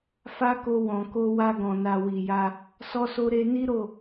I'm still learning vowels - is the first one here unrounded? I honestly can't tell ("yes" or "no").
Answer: yes